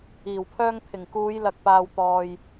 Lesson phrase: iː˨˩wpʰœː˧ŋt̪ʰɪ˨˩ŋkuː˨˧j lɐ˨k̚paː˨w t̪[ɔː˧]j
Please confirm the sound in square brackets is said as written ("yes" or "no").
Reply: no